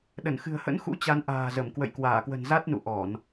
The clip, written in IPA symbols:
ɗ ə˧˩ n x ɨ̤˨˩ ə̯ h ə̰˧˥ n x ṵ˧˥ t͡ɕ a˨˦ n ʔ a̤ː˨˩ z ə˧˩ m k w ə̰˧˨ j k w aː˧˩ k w ə̤˨˩ n z a˦˥ t̚ n ṵ˧˨ ʔ ɔ˧˩˨ n

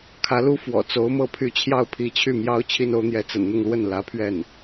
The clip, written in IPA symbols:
kʰ ä˧˥ l u˥ f w ɔ̰˨˩ t͡s o˧˥ ʊ̯ m ɤ˥˧ pʰ y˥˧ t͡ɕʰ j ɑ˥˩ ʊ̯ pʰ i˧˥ t͡ɕʰ y˥˩ m j ɑ˥ ʊ̯ t͡ɕʰ i˥ n o˧˥ ʊ̯ n̪ j ɛ˧˥ t͡s ə̰˨˩ n n̪ ʊ˥˧ ŋ l w ə˥˩ n l ä˧˥ pʰ ɥ ɛ˥˩ n

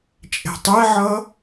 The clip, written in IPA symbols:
t͡ʃʼ ɛ̤ tˤ ɛ ʕ ʌ

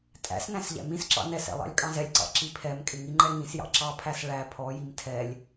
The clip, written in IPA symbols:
tʼ æ̰ s n æ̃ s ʎ æ̰ m ĩ s ǁ ɑ̰ n ɛ s ɛ̰ lˠ ɑ̰ lʲ kʼ ɑ̃ z ɛ lʲ ǀ ɑ̰ ǁ i pʰ ɛ m kʼ ɪ ŋ i ŋ͡ǃ ɛ ŋ ĩ s j ɑ̰ ǁ ɑ pʰ æ s ɭ æ pʰ ɔ j i m tʰ ɛ lʲ

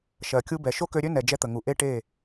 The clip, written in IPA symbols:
ʃ ɜ˨ kʲ u˧ b ɛ˨ ʃ o˦ k ø˧ ɾʲ ø˦ n ɛ˨ d͡ʒ ɛ˧ t̪ ə˨ ŋ u˨ ʔ e˦ ʈ e˦˨

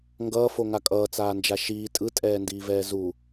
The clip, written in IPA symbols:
ŋ ɡ ʌː f o ŋ a kʼ ʌː t͡s aː n d͡ʒ a ʃ iː tʼ ɯ tʼ ɛː n d iː v ɛː z u

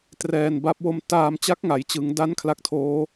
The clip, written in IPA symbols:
t r ɛː˨˩ n b a˦˥ p̚ w o˧ m t aː˧ m t͡ɕ a˦˥ k̚ ŋ a˩˦ j t͡ɕ ɯ˩˦ ŋ d a˦˥ n kʰ l a˦˥ k̚ tʰ oː˦˥

